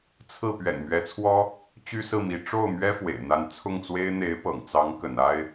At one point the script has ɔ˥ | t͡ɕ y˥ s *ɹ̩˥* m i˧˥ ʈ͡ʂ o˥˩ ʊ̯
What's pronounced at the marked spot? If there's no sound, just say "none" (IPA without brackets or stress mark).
ɹ̩˥˩